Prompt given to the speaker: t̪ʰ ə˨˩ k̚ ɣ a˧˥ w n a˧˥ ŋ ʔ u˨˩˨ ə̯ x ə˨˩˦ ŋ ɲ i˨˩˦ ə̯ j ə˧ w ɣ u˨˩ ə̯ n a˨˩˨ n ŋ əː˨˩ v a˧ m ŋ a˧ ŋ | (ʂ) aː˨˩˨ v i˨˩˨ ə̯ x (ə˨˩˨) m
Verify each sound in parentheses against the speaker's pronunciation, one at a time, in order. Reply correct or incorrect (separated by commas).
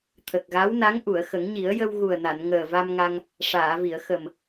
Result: correct, incorrect